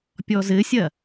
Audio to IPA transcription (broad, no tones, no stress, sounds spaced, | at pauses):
pʲ ɔ z ɘ sʲ ɐ